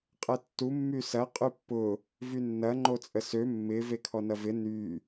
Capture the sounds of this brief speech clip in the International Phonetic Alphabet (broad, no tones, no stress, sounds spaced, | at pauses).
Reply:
qʼ ɛ tː u mː y s ɐ qʼ y pː ʊ | v y nː ɐ ŋ͡ǃ o t͡sʼ ə s ø mː ɪ v e kʰ ɔ n ɐ v ɪ n y